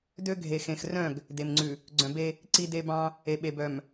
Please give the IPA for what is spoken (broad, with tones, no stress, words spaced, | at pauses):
dø˦ ɡʱe˨xẽ˨xrœ̃˦˨ɡ | de˨mŋ͡ǀʉ˨ | ɡ͡ǀœ̃˨be˦ | ǀi˦de˦bɑ̃˦ | e˨ɓe˨bœ˨m